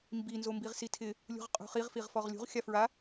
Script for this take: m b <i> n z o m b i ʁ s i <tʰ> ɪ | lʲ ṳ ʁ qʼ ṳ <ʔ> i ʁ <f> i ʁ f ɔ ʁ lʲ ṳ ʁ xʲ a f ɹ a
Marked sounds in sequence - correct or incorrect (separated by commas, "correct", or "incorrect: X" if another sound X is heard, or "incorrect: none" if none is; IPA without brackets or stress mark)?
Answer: correct, correct, incorrect: χ, correct